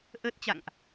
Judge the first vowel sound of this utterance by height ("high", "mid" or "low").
mid